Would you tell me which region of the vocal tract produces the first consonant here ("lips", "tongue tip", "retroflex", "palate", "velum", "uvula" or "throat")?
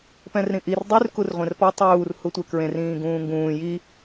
lips